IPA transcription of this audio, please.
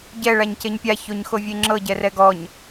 ɟɛ ɭaɲceɲpʲa çoɲxovʲeŋ͡ǁɤ ɟɛrɛɡɔɲ

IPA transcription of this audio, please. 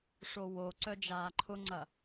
ʂowo ǀœd͡ʒaːǃʰʊŋ͡ǀɐ

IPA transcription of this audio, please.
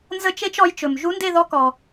nzə˥˧t͡ʃe˥t͡ʃɔ˧˥jt͡ʃɵ˨m ʒu˧˥nde˥˧ðɔ˧˥kɔ˨

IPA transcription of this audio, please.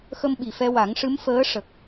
xə˧m ɓi˨˩fɛ˧wa˨˩˦ŋʂɨ˧˥m fəː˧˥ ʂə˨˩k̚

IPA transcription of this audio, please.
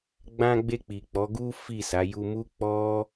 ɡ͡bã˧ɡ͡be˧k͡pi˨ k͡pɔ˨˦ɡu˦fi˦˨sa˨˦ ju˧mu˦ k͡pɔ˦

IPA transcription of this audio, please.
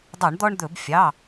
dˤo˧˩˧ɳd̪ɔ˦ɳd̪ɵ˧˩˧b fʲɑ˩˧˩

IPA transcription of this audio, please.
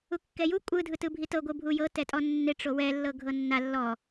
ukːɛju kʷʼɯ dʱɯtɯbʱitɤ ɡʷɯbʱujɤ tɛtʼɔnːe ʈ͡ʂowɛ lːɤɡʱɤnːa lːɔ

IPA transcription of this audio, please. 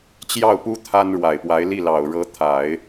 t͡ɕjɑ˥˩ʊ̯pu˥ t̪ʰa˥n ɻwa˨˩ɪ̯pwa˧˥ɪ̯li˥˩lɑ˨˩ʊ̯ ɻɤ˧˥t̪ʰa˨˩˦ɪ̯

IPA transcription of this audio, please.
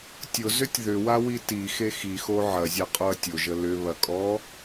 tʲʊzʏtʲ ðʏwawi tixe xixo ʕɐzʲaqʼoɐ̯ tʲʊʒə lʏβɐkʼɔ

